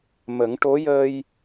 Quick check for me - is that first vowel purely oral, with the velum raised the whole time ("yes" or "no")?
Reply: yes